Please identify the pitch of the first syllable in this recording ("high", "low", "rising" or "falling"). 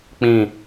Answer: low